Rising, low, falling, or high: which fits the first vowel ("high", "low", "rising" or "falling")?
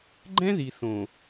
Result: high